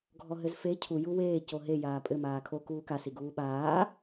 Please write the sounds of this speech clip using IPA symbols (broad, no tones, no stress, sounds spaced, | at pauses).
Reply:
ɡʱ ɔ ɦ ɘ z f e cʰ u j u w eː c o ɦ e j aː pʼ ɘ m aː kʰ o k uː k a s i ɡ uː ɓ aː